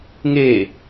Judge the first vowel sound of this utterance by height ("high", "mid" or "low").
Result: mid